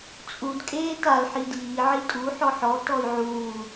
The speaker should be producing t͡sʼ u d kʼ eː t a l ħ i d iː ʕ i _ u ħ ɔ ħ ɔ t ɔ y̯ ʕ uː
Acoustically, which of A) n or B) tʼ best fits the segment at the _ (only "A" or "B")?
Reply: B